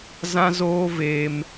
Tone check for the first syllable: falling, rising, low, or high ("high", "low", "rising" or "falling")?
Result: high